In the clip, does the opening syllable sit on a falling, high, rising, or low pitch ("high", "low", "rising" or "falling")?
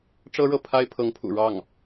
high